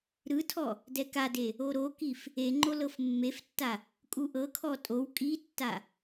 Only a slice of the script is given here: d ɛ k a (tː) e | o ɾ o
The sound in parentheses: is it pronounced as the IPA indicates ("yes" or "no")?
no